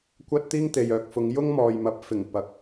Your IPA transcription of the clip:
kʷ ɐ˥ t̚ t̪ iː˥ ŋ t̪ e˨ j œː˨ k̚ f ʊ˨˧ ŋ j ʊ˥ ŋ m ɔː˨ j m ɐ˨˥ p̚ f ɪ˨˩ ŋ p ɐ˨ k̚

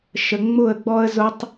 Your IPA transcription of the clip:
ʃ ə˨ ŋ͡m ʊ˦˨ ə̯ ɡ͡b ɔ˦ ə̯ z ʊ˦ tˤ

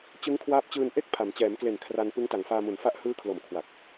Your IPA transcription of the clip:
t͡ɕ ɯ˦˥ ŋ kʰ w aː˦˥ p̚ t͡ɕ ɯː˧ n ʔ e˥˩ k̚ pʰ a˩˦ m t͡ɕ ɛː˩˦ m k l e˨˩ n kʰ r a˧ n p ɯ˦˥ ŋ t a˨˩ ŋ f aː˧ m u˨˩ n f a˥˩ ʔ h ɯː˦˥ kʰ l o˨˩ m kʰ w a˨˩ k̚

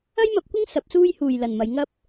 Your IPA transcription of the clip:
ɐ˥ j m ɐ˨˥ p̚ kʷ ɪ˥ ŋ s ɐ˨˥ p̚ s uː˥ j h uː˨ j l ɐ˨ n m ɐ˨˧ j ŋ ɐ˥ p̚

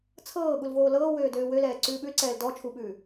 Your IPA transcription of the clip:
t͡sʰ ɤː ɠ u l v oː l ɤː w øː d øː w ø l ɛː ǀ ʉː ɓ ʉ l ǀ ɛː l d ɔ t͡ʃʰ u ɓ ʉː

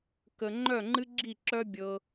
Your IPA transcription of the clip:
k ə˧ ŋ͡ǃ œ˦˨ ŋ͡ǃ ɨ˦ ɡ͡ǁ i˦˨ ǁ œ˦ bʲ ɤ˦

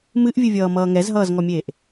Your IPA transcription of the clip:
m ɨ ʔ vʲ ɨ vʲ ʌː m ʌː ŋ ɛ z ɦ ʌː z ŋ ɔ mʲ eː ʔ

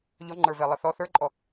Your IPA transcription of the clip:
ʎ ɔ ŋ͡ǃ ə˞ v ɛ lˠ ə θ ɔ θ ə˞ ǃʼ ɔ

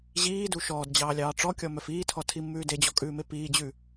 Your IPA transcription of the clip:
ʑ iː d u ʃ ɔː d d͡ʑ ɑː lʲ ɑː ʈ͡ʂ ɔ kʲ ɔ m œ f iː tʰ ɔ tʰ i mː ʉː d e d͡ʑ ɔ kʼ ʉː m e p iː d͡ʑ ʉ

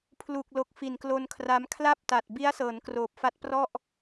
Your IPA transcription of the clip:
pʰ l u˨˩ k̚ l o˨˩ k̚ f i˨˩ n k l o˧ n kʰ r a˦˥ m kʰ l a˥˩ p̚ t a˨˩ t̚ b i˦˥ a̯ s ɤː˩˦ n k r oː˨˩ p̚ f a˦˥ t̚ p r ɔ˥˩ ʔ

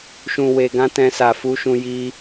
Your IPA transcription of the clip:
ʃ ũ˧ w e˧ ɡ ã˦ t ɛ̃˦ s a˧ f u˦ ʃ ũ˦ j i˦

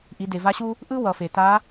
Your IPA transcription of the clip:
ʔ i˩˧ d e˩ v a˧˥ ɕ u˥ | ʔ ɯ˥ w ʌ˩ f e˩ t a˧˥

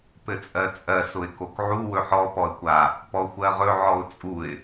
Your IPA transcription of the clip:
p ɘ t͡sʼ ɜ t͡sʼ ɜ s ʊ ɪ̯ k o k ʕ u w ɵ ħ ɔ p ɔ ə̯ kʷ a | p ɔ xʷ ɜ ʁ ɵ ʕ ɔ ʊ̯ t͡sʼ u ɪ̯

